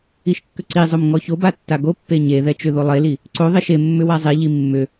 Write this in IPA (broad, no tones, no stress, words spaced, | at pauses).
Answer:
iʃkːʏǀizˤom ŋɔçoba tːaɡopːe ɲeðɛ t͡ʃʏðo lˠeli | ǀo ðˤeʃemːʏ wazˤeʎi mːʏ